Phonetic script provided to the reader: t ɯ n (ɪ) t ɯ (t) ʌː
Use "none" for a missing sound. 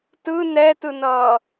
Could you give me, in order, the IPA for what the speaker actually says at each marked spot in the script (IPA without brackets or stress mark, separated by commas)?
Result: ɛ, n